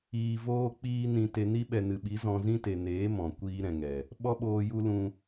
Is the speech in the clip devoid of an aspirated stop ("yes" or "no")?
yes